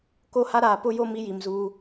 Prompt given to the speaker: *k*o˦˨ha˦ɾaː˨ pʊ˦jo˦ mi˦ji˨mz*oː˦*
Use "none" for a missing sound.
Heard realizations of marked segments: k, uː˦

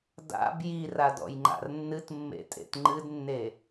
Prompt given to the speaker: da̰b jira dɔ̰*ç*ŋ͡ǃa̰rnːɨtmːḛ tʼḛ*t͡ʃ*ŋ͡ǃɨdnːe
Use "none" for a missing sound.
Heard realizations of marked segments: j, t

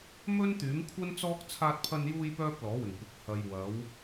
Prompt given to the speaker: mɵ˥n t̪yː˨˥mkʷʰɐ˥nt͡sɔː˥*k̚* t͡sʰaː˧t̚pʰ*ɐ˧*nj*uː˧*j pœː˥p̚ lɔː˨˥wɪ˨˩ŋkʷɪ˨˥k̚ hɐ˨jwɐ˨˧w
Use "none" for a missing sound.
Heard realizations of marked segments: k̚, ɐ˧, uː˧

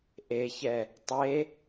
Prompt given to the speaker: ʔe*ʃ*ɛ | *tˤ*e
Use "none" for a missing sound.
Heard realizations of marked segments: ç, tˤ

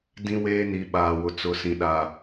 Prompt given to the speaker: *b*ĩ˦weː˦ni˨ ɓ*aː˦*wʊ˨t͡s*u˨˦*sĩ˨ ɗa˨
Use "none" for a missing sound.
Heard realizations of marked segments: d, aː˨, ʊ˨˦

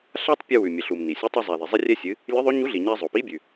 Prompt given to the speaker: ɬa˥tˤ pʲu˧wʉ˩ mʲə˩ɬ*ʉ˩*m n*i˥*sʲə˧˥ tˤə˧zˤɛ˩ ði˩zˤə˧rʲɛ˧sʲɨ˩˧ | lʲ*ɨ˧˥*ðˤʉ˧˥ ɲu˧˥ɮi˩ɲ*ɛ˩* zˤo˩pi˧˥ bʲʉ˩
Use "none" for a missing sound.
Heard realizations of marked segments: u˩, i˩, ɨ˧˥, ɛ˧

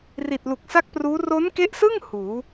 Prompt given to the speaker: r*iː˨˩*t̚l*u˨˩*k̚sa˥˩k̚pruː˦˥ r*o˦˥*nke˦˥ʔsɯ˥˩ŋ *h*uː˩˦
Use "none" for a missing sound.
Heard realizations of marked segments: i˨˩, u˨˩, o˦˥, h

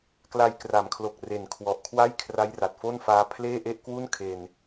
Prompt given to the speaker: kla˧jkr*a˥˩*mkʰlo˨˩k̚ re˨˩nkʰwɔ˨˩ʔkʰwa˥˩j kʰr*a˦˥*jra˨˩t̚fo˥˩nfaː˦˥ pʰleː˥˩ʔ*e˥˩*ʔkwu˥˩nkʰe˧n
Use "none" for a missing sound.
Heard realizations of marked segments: a˩˦, a˦˥, e˥˩

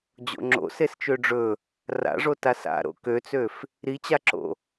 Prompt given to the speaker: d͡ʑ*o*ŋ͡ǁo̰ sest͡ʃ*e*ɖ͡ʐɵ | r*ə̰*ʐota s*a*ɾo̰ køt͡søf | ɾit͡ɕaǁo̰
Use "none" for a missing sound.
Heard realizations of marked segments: o̰, ø, a̰, a̰

